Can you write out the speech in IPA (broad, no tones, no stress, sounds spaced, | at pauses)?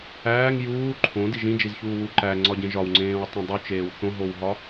æː ŋ j uː ǃʰ õ d i ʒ ĩ d͡ʒ i z ç uː w u ǃ æ ŋ͡ǀ ɒ ɟ ẽ ʒ ɒ w ŋ͡ǀ ẽː w tˤ ẽ dˤ u t͡ʃ eː w θ õ ɦ o w ɦ ɒ